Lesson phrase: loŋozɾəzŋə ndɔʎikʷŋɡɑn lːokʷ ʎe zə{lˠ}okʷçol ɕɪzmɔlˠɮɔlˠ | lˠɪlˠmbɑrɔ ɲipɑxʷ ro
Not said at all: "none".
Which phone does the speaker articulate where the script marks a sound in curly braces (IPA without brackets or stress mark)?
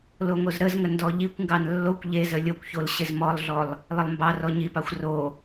lʲ